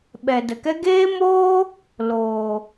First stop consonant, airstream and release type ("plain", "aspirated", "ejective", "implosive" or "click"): implosive